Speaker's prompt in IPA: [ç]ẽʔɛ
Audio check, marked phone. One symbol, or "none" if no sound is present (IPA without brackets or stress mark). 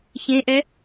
ç